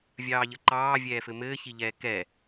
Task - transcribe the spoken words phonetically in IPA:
vʲɑːʎəǃɑː vʲɛːfɘmɘː çiʎɛːkɛ

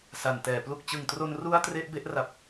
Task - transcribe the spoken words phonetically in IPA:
sa˨˩ntɛː˩˦ plu˨˩k̚t͡ɕɯ˨˩ŋtro˧n ru˥˩a̯tre˥˩ʔ be˥˩ʔra˨˩p̚

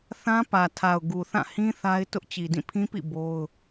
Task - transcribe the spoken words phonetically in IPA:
θã˦pä˨tʰa˨ʊ̯ɡu˨ θã˦˨hĩ˦ θa˦ɪ̯ tʊ˦ʔt͡ɕi˨ dĩ˦˨pʰĩ˦pḭ˦˨ bo˦ʊ̯

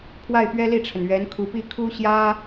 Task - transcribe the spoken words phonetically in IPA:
pʰwa˥˩ɪ̯pɥɛ˥li˥˩ʈ͡ʂʰə˩n ɥɛ˧˥nkʰu˧˥pi˥ kʰu˥ɕjä˥

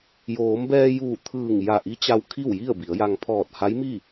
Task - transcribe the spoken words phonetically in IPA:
joː˩˧mbɛː˧juː˧˩ t̪ʰɯː˧˩ŋ ja˧˩ʔi˧˥t͡ɕa˧w kʰi˥˨wji˥˨ə̯bi˩˧ə̯ja˧ŋ pʰɔː˧˩t̚ha˧˥jmi˥˨

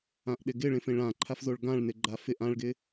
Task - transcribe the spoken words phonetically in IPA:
ãʔɗɪɡɪɭẽf ẽɭãǃʰafzoɭ ɡãɭnɪɡ͡ǃa fɪʔ ãɭɡɪ

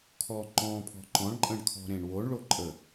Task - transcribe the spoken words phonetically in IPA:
kʰɔ ŋ͡ǃɔ̃pʰɔ̤ ǃɔ̃ɳǃʼə̃ɳkʰɔ̤ ɾẽɳwoɳ ɭoǃʼə

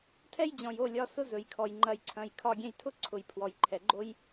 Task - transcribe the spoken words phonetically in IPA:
tʰɛ˦jd͡ʑɔ̃˨jo˦˨ lʲɒ˧ sʊ˦zɵ˨jkʰɔ˨j ŋ͡ǃɐ˧jǀʰɐ̃˧j kʰɒ˧ɡʲɛ̃˧jtʰʊ˦ǀʰʊ˨j pʰwɔ˨jǃʰɛ˨ɡ͡ǃo˦j

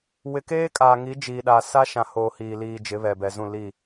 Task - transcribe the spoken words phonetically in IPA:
wɪ˨keː˦kʼaː˨ ŋi˨˦d͡ʒiː˨ɗa˨ sa˦ʃã˨hoː˨ hiː˨ liː˨ d͡ʒɪ˨˦βɛ˨bɛ˨zũ˦˨ li˦˨

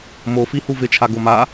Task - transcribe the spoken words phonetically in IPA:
mofi huvɪt͡ʃʰa ɡoma

